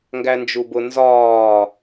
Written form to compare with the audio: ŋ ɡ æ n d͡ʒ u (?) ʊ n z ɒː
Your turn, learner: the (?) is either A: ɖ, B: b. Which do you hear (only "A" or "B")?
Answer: B